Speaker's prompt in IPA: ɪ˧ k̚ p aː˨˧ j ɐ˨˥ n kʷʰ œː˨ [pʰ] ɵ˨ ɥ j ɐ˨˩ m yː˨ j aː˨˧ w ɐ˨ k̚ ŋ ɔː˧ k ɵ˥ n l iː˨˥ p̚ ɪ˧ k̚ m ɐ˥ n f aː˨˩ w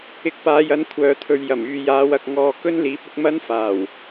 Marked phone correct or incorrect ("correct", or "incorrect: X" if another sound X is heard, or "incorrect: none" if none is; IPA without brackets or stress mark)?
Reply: incorrect: t̪ʰ